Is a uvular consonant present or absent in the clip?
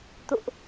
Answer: absent